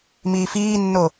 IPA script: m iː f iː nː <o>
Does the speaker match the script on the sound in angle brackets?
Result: yes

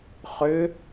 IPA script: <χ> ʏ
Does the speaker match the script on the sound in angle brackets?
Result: yes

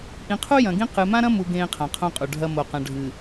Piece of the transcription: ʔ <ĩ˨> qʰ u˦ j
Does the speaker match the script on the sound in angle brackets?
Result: yes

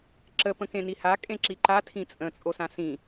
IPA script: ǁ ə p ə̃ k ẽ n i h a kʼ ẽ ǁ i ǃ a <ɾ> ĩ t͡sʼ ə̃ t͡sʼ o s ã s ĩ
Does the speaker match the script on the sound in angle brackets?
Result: no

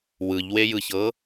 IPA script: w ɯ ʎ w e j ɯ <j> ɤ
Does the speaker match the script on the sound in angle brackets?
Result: no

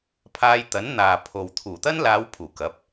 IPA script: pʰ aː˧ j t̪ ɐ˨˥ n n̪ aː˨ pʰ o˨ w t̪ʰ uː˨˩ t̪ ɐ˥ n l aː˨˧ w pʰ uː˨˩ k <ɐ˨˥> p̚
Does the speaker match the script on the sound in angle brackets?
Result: yes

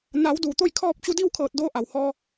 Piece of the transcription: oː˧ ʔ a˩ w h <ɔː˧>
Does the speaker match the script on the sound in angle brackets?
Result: yes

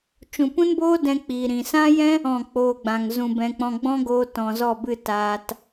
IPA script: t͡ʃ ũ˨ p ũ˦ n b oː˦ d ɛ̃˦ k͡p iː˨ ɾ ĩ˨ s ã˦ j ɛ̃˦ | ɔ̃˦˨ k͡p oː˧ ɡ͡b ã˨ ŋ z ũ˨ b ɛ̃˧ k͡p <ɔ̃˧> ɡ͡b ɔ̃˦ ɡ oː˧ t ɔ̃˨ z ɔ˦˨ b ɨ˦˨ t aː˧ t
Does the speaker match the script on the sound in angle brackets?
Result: yes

